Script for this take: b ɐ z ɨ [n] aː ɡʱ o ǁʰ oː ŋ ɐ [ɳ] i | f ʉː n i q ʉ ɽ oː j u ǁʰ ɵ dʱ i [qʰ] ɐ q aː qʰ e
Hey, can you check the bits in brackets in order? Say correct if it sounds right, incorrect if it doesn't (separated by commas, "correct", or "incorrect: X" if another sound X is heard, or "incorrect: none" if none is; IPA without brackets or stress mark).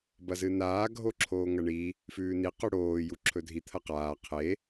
correct, correct, incorrect: t̪ʰ